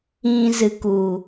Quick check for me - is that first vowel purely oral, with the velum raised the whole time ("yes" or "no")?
no